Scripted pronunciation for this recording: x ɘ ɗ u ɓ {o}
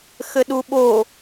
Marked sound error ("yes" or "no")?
no